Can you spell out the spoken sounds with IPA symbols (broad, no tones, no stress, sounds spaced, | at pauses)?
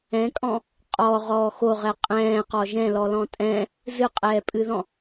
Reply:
ɛ̃ kʼ ɔ̃ | qʼ ɔ ʁ ɔː x o ʁ ɛ qʼ ɛ̃ː q ɔ ʒ ɛ̃ l ɔ l ɔ̃ tʼ ɛ̃ | z ɨ qʼ ɛː pʼ ɨ ð ɔ̃